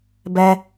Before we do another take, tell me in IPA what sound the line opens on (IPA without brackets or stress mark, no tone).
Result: b